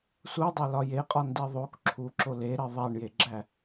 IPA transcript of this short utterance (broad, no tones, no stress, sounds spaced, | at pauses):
s u dˤ e l ɒ j e qʼ ɒ n d i ðˤ o k ǁʰ u ǁ o l e ɾ e ðˤ æ ɳ j e ɡ͡ǁ æ